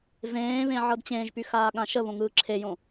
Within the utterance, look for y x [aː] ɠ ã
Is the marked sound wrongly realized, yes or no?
no